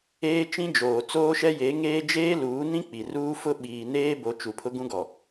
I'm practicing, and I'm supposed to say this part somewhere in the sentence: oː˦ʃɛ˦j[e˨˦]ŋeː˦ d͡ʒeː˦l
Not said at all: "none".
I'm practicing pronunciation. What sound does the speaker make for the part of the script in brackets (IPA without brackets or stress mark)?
e˨˦